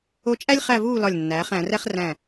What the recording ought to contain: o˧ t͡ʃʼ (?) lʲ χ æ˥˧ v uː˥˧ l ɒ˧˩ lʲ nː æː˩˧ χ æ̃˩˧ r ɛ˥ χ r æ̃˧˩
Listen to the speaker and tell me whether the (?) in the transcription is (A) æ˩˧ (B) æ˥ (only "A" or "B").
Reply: B